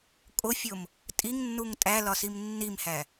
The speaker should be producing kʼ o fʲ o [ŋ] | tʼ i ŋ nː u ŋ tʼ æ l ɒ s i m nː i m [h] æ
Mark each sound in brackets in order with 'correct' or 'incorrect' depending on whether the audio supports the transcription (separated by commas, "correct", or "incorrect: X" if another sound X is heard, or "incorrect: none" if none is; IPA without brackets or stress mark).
incorrect: m, correct